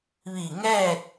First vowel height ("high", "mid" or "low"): high